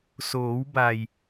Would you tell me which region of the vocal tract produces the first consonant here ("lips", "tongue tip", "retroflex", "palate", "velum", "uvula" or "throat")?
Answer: tongue tip